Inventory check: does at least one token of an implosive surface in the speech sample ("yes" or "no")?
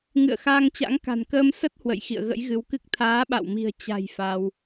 yes